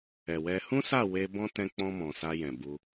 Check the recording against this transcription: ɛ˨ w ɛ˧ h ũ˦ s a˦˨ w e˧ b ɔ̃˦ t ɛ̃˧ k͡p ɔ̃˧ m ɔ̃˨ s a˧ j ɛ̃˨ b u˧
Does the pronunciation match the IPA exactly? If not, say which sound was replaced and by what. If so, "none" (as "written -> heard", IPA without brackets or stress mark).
none